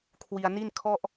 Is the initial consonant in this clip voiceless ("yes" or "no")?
yes